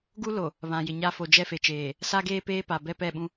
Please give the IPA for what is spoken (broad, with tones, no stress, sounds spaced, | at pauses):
ɡ u˦ l o˨ | β ã˨ j ɪ˨ ɲ a˦ f o˨ d͡ʒ ɛ˦ f e˨ t͡ʃ eː˨ | s a˦ ɡ eː˦ p eː˦ p a˨ b ɛ˦ p ɛ˦˨ ɓ ũ˦